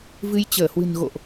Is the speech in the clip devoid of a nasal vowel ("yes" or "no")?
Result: yes